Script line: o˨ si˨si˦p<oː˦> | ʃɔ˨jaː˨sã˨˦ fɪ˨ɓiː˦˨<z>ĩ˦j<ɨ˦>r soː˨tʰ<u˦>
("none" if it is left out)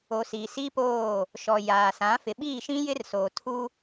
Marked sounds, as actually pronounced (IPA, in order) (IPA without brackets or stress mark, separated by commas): oː˦˨, ʃ, ɪ˦, u˦